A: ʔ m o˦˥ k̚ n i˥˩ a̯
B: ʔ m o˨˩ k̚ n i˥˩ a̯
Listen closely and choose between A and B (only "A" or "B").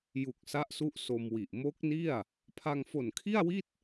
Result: A